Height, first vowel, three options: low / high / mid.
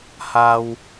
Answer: low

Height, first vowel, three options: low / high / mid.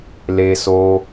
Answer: mid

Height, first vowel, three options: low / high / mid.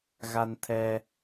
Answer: low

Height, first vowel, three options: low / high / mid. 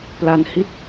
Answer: low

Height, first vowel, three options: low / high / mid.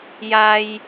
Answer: low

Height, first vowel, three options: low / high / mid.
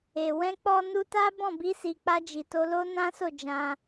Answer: mid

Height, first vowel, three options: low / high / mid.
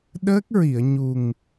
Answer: mid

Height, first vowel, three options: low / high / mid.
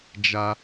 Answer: low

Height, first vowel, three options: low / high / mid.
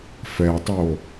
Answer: mid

